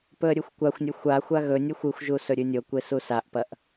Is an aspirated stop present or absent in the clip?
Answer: absent